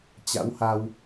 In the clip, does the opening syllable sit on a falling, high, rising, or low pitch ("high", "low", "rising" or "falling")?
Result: rising